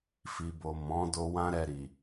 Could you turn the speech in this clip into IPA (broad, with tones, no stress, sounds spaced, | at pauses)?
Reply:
f i˨ b o˨ m ɔ̃˨˦ d o˧ w ã˦ ɾ ɛ˧ ɾ i˨